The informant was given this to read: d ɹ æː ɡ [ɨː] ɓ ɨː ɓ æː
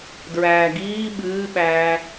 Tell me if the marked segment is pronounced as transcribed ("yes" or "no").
no